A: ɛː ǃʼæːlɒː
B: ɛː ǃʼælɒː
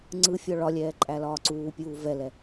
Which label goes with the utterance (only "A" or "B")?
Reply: B